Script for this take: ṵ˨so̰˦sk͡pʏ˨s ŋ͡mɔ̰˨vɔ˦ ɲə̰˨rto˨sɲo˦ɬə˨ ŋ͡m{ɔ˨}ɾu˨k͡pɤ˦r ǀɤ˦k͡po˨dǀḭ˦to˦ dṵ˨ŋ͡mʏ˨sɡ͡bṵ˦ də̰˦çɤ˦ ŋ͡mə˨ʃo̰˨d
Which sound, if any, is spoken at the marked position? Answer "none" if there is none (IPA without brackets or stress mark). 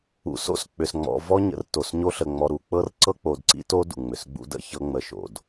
ɔ˨